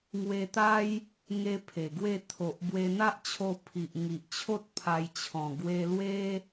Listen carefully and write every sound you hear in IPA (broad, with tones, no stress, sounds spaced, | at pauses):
ŋ w e˧ t̪ a˦ j | ŋ e˧ pʰ e˨˩ ɡ w e˥˧ t̪ʰ o˨ ʔ b w e˧ n̪ a˦ ʔ t͡ɕʰ o˧ pʰ i˨ ʔ ŋ i˨ ʔ t͡ɕʰ o˦ t̚ pʰ a˧ j t͡ɕʰ ɔ̃˨˩ ɡ w e˧ l w e˦